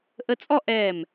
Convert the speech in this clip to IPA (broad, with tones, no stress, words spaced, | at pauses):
ʔə˧t͡sʼɔ˥˧ʔɛː˧˩m